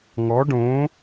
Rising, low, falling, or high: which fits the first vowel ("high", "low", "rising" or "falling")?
rising